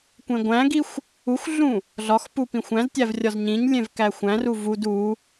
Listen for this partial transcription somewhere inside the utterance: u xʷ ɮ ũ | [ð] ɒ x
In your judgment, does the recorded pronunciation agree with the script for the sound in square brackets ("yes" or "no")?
no